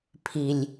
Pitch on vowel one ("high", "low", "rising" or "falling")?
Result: low